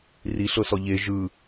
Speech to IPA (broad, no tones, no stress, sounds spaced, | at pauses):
r i ɬ ɤ s ɔ ʎ e ʒ ɯ